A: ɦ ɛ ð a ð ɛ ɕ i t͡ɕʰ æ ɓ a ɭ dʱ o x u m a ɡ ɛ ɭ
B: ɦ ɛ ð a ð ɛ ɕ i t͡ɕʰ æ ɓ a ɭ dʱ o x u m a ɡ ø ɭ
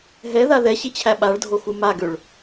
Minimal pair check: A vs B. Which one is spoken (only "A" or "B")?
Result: B